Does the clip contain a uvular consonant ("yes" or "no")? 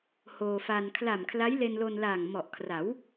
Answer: no